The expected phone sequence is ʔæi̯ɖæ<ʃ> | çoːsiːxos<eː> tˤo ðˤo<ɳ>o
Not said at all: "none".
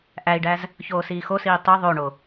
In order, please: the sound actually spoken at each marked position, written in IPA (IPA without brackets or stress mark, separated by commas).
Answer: z, iː, ɳ